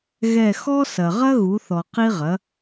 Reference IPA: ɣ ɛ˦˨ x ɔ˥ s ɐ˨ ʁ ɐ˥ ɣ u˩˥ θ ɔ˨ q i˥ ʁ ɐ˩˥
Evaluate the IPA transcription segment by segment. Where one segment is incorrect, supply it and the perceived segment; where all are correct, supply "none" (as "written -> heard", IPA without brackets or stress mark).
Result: none